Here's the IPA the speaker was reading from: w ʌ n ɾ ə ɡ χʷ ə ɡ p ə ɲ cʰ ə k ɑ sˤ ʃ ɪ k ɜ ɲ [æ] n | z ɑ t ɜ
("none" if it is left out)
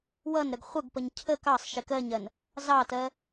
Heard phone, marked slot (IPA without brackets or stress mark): ɜ